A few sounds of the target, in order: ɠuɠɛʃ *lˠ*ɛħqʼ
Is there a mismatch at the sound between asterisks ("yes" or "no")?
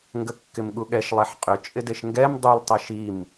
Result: no